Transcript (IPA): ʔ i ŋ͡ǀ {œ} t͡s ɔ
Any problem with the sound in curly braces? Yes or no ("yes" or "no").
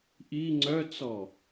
no